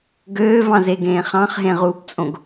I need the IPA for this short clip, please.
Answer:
ɡ øː v ɑ̃ z e ɡ ẽː χ ɑ̃ χ ɦ ẽ ʁ uː p t͡sʼ õ ɡ

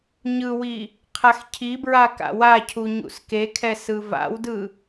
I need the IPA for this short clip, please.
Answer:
ɲ ɯ w i | qʰ a x cʰ i b ɹ a k a̰ w a cʰ u ɲ ṵ s k e kʰ ɛ s ɯ v a̰ w d ɯ

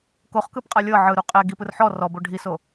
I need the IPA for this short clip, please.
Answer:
k o χ k ɯ p qʼ a lʲ ɤ ʕ ɯ ɾ u qʼ ɛ ɡ i p ɯ r ħ ɔ r ɔ b o ɖʱ i s o

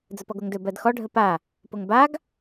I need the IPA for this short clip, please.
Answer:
d͡z ə p ɔ ɡ o ŋ d ɵ b ɜ d x ɔ ɖʱ ə p a | p o ŋ b a ɡ

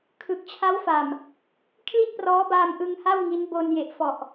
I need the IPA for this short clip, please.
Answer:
kʰ ɯ˨˩ k̚ t͡ɕʰ a˦˥ w f a˨˩ m | kʰ l i˥˩ t̚ p r ɔː˦˥ b aː˧ m ʔ ɯ˧ ŋ h a˥˩ w ŋ i˦˥ n b o˧ n j e˨˩ ʔ f ɔ˨˩ ʔ

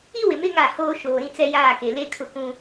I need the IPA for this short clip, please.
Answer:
i˦ w ɪ˨ m ɪ˦ ŋ a˦˨ h oː˦ ʃ oː˨ ɾ ĩ˦ t͡s ɛ˦ j aː˦˨ k e˨ l e˦ kʰ ʊ˦˨ k ũ˦

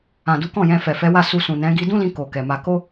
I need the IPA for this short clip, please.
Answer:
ã˨ d u˨˦ k ɔ̃˦˨ j ɛ̃˧ f ɛ˨ f ɛ˨˦ w a˦˨ s u˧ s ũ˨ n ɛ̃˨˦ ɡ i˧ d ũ˦ l ĩ˧ k o˨ k ɛ˨ m a˧ k o˦

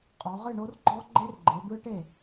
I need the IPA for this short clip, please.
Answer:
qʼ ɔ˨˦ ʁ ɨ˥˨ ɳ o˦˥ r ɡ͡ǃ ɔ˦˥ ɡ͡ǃ e˦˥ r ɡ͡ǃ e˨˦ d̪ ɯ˦˥ ʈ e˥˨

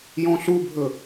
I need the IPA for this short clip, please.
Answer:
j ɔ̃ ɬ u bʱ ɵ

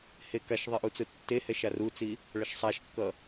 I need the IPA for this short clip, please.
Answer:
h e k a ʃ ðˤ i ʔ u t͡s ɯ tː e h ɛ ʃ a r u t͡s i | ɭ ʌ ʃ sˤ a ʃ kː ʌ

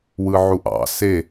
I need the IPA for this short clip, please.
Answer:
w ɯ ʕ u ʔ ɑ̰ s e

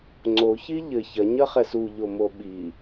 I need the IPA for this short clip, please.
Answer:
ŋ͡ǀ o ç i ʎ ɘ ç ɐ ɲ ɐ χ ɛ s u ʎ o m o ɓ i

